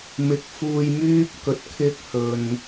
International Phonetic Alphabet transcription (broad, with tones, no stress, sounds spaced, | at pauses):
m ɪ˨˥ k̚ f uː˧ j m yː˥ p̚ k ɵ˨˥ t̚ kʰ ɪ˥ k̚ h ɵ˨ n